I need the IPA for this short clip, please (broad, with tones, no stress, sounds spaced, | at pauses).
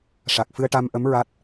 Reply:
ʂ a˨˩ k̚ f ɨ˧ ə̯ ʈ a˧ m ʔ ə˧˥ m ɹ a˦˥ t̚